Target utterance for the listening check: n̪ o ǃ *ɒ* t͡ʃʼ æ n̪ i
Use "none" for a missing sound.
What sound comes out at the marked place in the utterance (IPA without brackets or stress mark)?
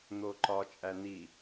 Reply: ɒ